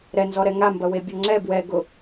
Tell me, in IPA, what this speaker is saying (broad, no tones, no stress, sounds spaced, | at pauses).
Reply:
ɾ ɛ n z ɔ ɾ ɛ ŋ a m b ɐ w e bʲ ɔ ŋ͡ǀ ɛ b w ɛ ɡ ʊ